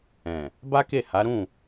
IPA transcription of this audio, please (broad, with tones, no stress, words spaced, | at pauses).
ɛ̃˨ | ba˦ke˦˨ ha˨˦ɾũ˦˨